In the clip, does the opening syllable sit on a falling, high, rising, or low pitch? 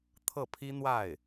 falling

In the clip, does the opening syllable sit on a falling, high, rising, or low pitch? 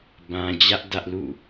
low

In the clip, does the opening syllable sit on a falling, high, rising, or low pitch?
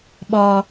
low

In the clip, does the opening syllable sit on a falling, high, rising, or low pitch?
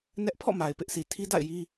high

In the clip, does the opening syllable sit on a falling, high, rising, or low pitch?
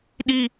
high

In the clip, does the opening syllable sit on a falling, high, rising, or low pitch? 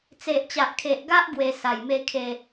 low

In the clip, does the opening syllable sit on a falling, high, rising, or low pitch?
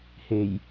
low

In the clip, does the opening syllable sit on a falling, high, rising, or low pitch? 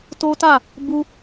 high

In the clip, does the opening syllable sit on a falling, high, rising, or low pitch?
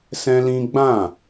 high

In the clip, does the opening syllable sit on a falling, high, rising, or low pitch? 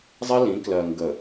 high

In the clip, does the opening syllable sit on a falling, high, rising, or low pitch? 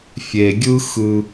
low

